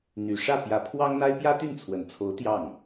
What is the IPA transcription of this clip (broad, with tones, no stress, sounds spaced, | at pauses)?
n̪ y˨˩ ʂ ä˥˩ p j ä˧˥ pʰ w ɑ˥ ŋ n̪ a˥ ɪ̯ p j ä˥ t̪ y˥˩ n t͡sʰ w ə˨˩ n t͡sʰ o˧˥ ʊ̯ t̪ j ɑ˥˩ ŋ